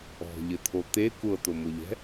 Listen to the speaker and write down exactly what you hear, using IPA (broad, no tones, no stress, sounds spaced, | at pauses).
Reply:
ɔ̤ ʎ ɘ t̪ʰ o t̪ e kʷ ɤ t̪ o m o ʎ ɛ̤